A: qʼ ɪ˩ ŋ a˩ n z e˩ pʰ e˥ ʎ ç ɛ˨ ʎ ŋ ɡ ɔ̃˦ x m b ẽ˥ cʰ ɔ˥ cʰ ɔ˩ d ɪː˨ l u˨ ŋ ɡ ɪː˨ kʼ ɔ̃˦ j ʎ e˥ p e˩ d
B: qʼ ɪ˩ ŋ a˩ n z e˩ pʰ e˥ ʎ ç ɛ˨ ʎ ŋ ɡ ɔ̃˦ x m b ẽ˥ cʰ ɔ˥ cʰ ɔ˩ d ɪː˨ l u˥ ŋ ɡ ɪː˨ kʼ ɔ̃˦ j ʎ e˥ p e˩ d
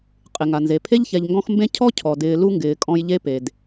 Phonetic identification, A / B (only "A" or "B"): B